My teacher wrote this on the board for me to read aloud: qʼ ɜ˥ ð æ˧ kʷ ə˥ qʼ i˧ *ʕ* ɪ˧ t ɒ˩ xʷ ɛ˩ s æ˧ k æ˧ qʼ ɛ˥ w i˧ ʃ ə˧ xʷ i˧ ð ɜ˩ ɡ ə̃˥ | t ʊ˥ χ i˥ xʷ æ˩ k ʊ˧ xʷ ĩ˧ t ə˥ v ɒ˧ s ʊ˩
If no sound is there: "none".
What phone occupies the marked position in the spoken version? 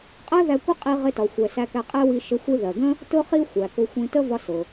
ʁ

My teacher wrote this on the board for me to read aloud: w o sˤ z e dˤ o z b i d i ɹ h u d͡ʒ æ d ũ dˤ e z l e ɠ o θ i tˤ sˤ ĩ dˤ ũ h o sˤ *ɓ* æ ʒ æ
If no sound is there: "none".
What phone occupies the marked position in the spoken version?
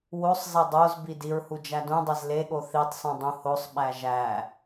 ɓ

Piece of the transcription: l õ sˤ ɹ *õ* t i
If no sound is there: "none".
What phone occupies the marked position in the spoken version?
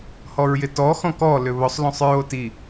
o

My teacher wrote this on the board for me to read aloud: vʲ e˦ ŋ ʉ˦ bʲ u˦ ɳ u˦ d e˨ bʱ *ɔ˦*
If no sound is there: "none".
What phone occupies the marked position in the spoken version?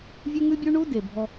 ɔ˦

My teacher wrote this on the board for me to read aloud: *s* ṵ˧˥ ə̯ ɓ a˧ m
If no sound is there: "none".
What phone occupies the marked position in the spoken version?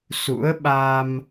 s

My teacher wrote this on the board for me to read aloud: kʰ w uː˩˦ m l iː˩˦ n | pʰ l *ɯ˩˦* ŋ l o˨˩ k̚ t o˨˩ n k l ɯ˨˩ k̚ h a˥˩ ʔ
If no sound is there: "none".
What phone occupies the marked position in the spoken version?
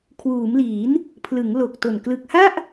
ɯ˩˦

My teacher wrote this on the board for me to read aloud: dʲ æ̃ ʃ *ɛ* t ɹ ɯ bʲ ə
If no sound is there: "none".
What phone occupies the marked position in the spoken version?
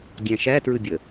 æ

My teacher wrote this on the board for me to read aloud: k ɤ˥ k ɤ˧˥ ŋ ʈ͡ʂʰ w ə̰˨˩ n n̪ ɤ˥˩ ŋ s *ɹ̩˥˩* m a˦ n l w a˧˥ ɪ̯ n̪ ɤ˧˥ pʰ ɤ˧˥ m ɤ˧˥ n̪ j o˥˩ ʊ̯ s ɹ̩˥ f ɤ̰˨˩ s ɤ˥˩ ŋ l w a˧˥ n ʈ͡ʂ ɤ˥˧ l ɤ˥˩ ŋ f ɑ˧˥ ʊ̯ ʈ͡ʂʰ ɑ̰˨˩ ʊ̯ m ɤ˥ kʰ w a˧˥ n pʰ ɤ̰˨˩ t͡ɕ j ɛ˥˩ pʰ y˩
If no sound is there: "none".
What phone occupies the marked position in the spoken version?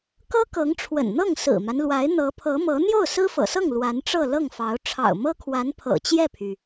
ɹ̩˨˩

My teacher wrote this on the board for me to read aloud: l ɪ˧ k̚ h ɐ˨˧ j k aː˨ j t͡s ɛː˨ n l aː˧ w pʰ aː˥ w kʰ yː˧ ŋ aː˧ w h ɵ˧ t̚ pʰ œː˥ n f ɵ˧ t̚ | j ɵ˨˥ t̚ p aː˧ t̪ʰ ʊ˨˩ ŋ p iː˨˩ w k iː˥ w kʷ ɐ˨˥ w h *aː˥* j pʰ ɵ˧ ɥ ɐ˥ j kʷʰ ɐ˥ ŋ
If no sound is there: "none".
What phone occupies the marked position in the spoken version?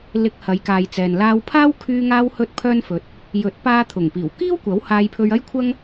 aː˧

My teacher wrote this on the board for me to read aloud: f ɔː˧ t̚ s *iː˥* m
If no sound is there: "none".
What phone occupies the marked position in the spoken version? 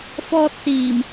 iː˨˩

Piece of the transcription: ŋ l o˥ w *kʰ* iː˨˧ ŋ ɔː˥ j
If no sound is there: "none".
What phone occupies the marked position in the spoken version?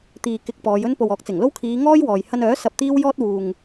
kʰ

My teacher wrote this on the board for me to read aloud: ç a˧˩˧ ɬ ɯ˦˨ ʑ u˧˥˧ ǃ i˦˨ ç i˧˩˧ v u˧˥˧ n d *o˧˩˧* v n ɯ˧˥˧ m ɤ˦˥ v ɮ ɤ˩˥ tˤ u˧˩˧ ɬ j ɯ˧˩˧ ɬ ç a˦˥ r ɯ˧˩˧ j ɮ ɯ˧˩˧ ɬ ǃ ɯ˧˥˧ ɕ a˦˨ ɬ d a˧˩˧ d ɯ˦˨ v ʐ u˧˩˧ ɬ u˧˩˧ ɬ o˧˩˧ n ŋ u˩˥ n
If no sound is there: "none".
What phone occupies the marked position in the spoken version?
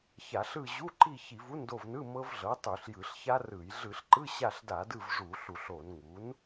o˦˨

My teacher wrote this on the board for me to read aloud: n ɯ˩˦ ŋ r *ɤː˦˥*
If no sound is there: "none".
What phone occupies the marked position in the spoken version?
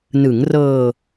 ɤː˧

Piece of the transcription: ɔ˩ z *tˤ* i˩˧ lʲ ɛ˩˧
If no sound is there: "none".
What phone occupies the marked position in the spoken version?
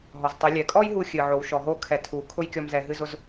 tˤ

